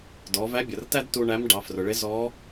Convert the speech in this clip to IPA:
d ɔ˩˧ v æ˧˥ bʲ ʌ˩ r t æ˥ d t u˧ ɳ æ˧˥ m ɖ ɑ˩˧ f r ʊ˩ ɭ ɪ˧˥ z ɔ˧˥

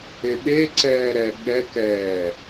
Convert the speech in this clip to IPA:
e ɓ e ǀ ɛː ɾ ɛ ɠ ɛ k ɛː

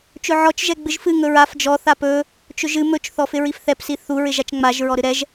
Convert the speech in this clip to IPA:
t͡ʃ ɵ ʕ ɔ t͡ʃ ʒ ɛ ɡ͡b ɨ ʒ f ɨ ŋ ɵ ɹ a f d͡ʒ ɔ θ a p ɵ | t͡ʃ ɵ ʒ ɨ m ɵ t͡ʃ θ ɔ f ɪ ɹ i f θ ɛ p s i θ u ɹ ɪ ʒ a t͡ʃ ŋ͡m a ʒ ɹ ɔ ɾ ɨ ɾ ɛ ʒ

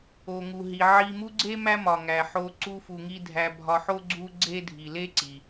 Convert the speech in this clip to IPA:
o˩ ŋ u˩ ɦ i˩ ʕ i˨ m u˦ ɡ͡ǀ e˥ m æ˦ m ɒ˩ ŋ æ˩ ħ o˨ ǀ u˦ f u˨ ŋ i˦ dʱ æ˨ bʱ ɒ˨ ħ o˦ ɡ͡ǀ u˥ ɡ͡ǀ e˥ dʱ i˩ l e˦ ǀ i˩

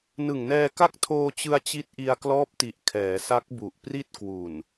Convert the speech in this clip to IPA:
n ɯ˨˩ ŋ n ɛː˧ k a˦˥ k̚ tʰ oː˧ t͡ɕ ɯ˧ a̯ t͡ɕ i˦˥ t̚ ʔ i˧ a̯ k l ɔː˦˥ p̚ t i˨˩ ʔ kʰ ɛː˩˦ s a˦˥ k̚ b u˨˩ ʔ p r i˥˩ t̚ k w u˨˩ n

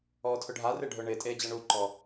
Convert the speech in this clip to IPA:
ɔː tʰ ʊ ɖʱ a r ɪː ɖʱ ʊː ɳ ɪː tʼ eː d͡ʑ ɐ ɳ u ǃ ɔ

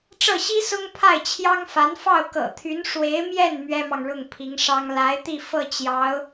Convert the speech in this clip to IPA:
ʈ͡ʂ ɤ˥˩ ɕ i˥ s ʊ˥ ŋ pʰ a˥˩ ɪ̯ t͡ɕʰ j ɑ˥ ŋ f a˧˥ n f ɑ˥˩ ʊ̯ k ɤ̰˨˩ t̪ʰ y˧˥ n ʂ w e˧˥ ɪ̯ m j ɛ˥˩ n m ɥ ɛ˥ m ɑ˨ ŋ ɻ ʊ˥˩ ŋ pʰ i˧˥ ŋ ʂ ɑ˥ ŋ l a˧˥ ɪ̯ t̪ i˥˧ f ɤ˥˩ t͡ɕ j ɑ˧˥ ʊ̯

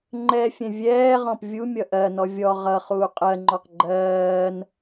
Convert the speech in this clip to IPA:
ŋ͡ǃ ɛ fʲ ɛ̃ vʲ ɛː ʁ ɔ̃ p vʲ u mʲ ʌ ʔ ɜ n ɔ vʲ ɔ ʁ ʌ χ uː qʼ ɜ ŋ͡ǃ ɔ q ɡ͡ǃ ɜː n

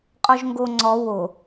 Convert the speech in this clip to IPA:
qʼ ɔ ʒ ŋ ɡ o ŋ͡ǀ ɔ w o

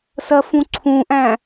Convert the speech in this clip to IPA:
s ɜ f ũ ǀʰ ũ ʔ æ̃

